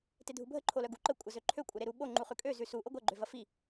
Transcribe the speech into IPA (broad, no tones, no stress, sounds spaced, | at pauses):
t e dʱ u bʱ ə ǃʰ o l œ ɡ u ǃ ə kʷʼ ɐ z ø ǃʰ ø kʷʼ ɐ ɾ e ɾ u ɓ o ŋ͡ǃ u χ ʉ kʼ ø z ʉ s u ʔ o ɡʷ ɐ ɡ͡ǃ ø v ɐ f i